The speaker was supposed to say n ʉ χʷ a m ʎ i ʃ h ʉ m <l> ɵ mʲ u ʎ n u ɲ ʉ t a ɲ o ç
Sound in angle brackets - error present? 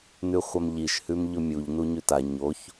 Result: yes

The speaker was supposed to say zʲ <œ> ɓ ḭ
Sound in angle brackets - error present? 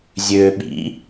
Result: yes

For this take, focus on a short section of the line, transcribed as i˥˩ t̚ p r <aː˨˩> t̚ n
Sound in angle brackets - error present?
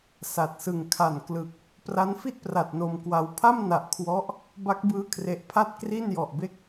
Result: yes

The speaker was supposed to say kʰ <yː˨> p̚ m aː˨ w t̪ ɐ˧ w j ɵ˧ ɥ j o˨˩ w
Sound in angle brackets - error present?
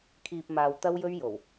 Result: yes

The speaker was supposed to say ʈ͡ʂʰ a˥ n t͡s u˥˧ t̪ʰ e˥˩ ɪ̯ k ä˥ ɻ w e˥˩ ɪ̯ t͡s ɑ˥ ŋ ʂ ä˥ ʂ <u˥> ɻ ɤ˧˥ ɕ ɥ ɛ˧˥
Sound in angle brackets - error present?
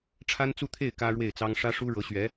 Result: no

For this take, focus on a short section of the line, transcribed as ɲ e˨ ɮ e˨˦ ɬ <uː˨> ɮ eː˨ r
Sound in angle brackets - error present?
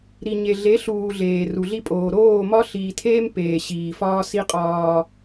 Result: no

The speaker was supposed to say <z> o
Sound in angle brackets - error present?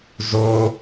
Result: no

